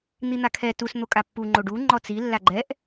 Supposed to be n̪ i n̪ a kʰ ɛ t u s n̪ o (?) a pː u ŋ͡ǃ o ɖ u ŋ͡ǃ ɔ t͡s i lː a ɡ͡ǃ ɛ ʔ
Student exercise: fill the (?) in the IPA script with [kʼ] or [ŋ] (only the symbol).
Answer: kʼ